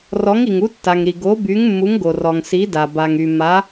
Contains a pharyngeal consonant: no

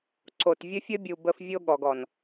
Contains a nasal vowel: no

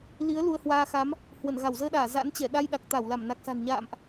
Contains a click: no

